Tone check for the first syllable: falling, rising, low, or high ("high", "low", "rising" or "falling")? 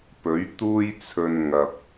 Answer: rising